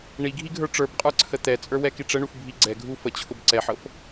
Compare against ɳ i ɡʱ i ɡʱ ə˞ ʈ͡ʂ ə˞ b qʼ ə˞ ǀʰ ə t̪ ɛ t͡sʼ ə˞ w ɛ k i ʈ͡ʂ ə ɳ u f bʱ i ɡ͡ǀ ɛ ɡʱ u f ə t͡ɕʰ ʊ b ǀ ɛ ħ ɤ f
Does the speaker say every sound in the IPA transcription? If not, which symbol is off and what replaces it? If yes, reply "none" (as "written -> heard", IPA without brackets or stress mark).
none